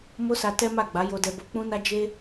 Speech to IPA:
m o˦ s a˧ t ɛ˦ m a˦˨ ɡ͡b a˨˦ j o˧ d ɛ˧ b o˧ k͡p ũ˦ n a˦ d͡ʒ e˦

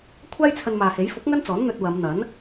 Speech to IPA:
kʷʰ aː˥ j t͡sʰ ɐ˧ n m aː˨ h e˨˥ j f ʊ˨˥ k̚ ŋ ɐ˥ n t͡s ɔː˨˥ n n̪ ɵ˧ t̚ w ɐ˨˧ m n̪ ɐ˨˥ n

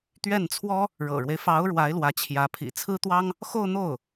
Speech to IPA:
t̪ ɥ ɛ˥˩ n t͡sʰ w ɔ˥ | ɻ ɤ̰˨˩ ɻ w e˦ ɪ̯ f ɑ˧˥ ʊ̯ ɻ w a˧˥ ɪ̯ l w ä˧˥ t͡ɕʰ j ä˧˥ pʰ ḭ˨˩ t͡sʰ ɹ̩˥ t̪ w ɑ˥ ŋ | x o˥˧ ʊ̯ n̪ o˥˩ ʊ̯

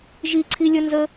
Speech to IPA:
ʒ i ǀʰ i lʲ ə n z ə

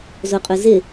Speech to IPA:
z o qʼ ʊ z ɪ

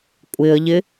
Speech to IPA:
kʷʼ ɪ ə̯ ʎ ɪ

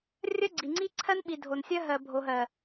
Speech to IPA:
rʲ ɜ˦ ɡ͡ǀ i˨ ŋ͡ǀ i˦ ǀʰ ɜ˦ n ɓ i˨ dʱ o˨ n sʲ ɜ˦ ɦ ɜ˨ bʱ o˨ ɦ ɜ˨

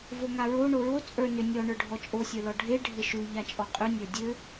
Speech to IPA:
v o ŋ a ɹ o ɳ o ɹ o t͡sʼ ə˞ n ʏ nʲ ɔ ɳ ə˞ ɖʱ ɔ t͡ʃʼ o sʲ ə˞ l ɔ ɖʱ e ɖʱ ɘ ʃ ʉ ʎ a t͡ʃʼ ɔ qʼ ʉ nʲ ə˞ dʲ ɘ

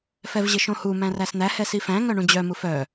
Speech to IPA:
f ɛ v ʑ ɪ ʃ õ h u m æ̃ r æ s n̪ æ h ɛ s i f æ̃ ŋ œ ɳ ũ d͡ʑ œ m u f œ

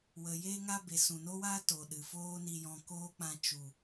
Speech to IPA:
w ə˨ j eː˦ ŋ a˦ b e˨ s ũ˨ n o˦ w aː˦ t o˨ ɗ ɨ˨ f oː˦ n i˧ j ɔ̃˧ k oː˦ k͡p ã˧ t͡ʃ u˨

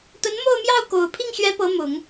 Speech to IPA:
t̪ ə˧˥ n m o˥˧ ʊ̯ m j ɑ˥˩ ʊ̯ k o˨˩ ʊ̯ pʰ i˥˩ ŋ ɕ ɥ ɛ˧˥ p ɤ˧˥ m ʊ˨˩˦ ŋ

